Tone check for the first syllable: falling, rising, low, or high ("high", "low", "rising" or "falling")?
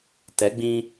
rising